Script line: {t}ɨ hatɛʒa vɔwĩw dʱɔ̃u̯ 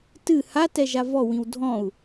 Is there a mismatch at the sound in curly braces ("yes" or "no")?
no